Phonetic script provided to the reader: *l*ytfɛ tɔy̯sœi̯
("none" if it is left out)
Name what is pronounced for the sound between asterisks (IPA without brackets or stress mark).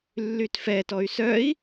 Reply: lː